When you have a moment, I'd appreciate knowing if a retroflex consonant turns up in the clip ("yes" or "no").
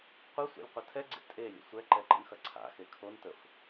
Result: no